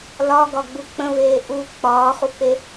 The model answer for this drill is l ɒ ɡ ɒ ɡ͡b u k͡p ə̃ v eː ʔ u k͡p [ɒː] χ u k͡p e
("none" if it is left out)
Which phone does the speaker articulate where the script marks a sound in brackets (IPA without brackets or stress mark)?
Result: ɒː